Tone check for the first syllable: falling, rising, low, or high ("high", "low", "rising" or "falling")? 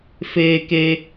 low